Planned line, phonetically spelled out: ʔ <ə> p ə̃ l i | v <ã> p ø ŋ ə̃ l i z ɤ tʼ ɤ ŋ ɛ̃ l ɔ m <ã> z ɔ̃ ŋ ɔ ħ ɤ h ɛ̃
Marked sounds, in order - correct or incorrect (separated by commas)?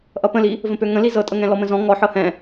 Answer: incorrect, incorrect, incorrect